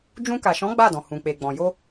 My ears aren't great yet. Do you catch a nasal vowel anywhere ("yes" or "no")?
yes